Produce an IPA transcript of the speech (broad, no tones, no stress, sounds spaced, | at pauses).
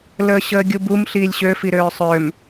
l əː ɕ əː ɡʲ u b u m ɬ iː lʲ ɕ ø f i ɾ øː sˤ ø m